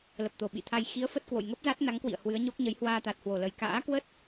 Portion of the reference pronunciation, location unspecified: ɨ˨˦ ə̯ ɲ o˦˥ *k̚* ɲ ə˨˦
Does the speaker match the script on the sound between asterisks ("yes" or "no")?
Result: yes